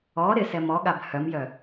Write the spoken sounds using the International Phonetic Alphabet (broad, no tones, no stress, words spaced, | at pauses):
ɔ ɾɪsɛm ɔɠab hœmjœ